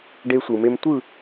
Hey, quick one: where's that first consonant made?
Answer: retroflex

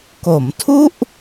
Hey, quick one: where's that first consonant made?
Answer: velum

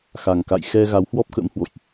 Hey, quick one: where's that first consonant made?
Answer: velum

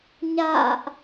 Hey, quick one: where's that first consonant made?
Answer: palate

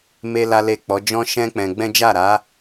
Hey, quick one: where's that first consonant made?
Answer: lips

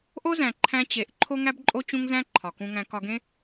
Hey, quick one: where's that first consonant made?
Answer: throat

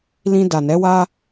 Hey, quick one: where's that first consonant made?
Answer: tongue tip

